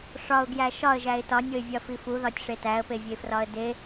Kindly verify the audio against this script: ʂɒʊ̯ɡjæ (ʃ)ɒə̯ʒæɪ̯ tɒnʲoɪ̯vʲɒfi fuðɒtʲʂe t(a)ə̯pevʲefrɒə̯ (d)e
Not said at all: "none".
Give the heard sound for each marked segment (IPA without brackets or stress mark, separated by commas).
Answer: ʃ, æ, d